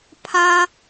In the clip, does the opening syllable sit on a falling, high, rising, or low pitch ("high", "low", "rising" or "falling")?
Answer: high